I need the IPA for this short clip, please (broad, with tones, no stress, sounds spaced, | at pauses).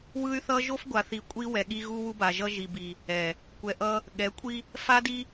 w ɯ˦ y̯ θ ʌ˦ ʒ o˦ f ɡʷ a˨ θ i˨ kʷʼ i˦ w ɛ˨ ɠ i˦ ɣ u˦ w u˦ b a˨ ʒ ʌ˦ ʒ i˨ b i˨ | ɛ˨ | kʷ ɛ˨ ʔ ʌ˦ | ɠ ɛ˨˦ kʷʼ i˦ | f a˦ d i˦